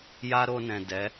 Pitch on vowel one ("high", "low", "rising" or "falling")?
high